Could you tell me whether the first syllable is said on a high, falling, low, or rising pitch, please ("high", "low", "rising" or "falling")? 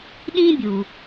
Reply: high